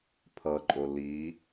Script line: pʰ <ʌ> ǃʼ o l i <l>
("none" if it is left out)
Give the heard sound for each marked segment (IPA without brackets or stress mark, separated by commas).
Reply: ʌ, none